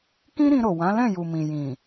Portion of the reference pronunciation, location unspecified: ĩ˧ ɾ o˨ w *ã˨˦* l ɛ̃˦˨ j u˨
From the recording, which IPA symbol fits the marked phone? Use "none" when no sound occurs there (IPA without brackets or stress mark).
ã˨˦